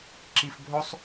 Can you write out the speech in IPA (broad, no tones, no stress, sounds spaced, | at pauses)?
ǁ i f bʱ o sˤ